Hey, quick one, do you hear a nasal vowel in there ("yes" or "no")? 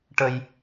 no